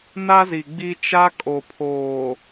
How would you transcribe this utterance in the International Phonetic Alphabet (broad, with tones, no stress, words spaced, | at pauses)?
na˦zi˨ɡ͡bi˦ t͡ʃa˦kʼo˨pʰoː˨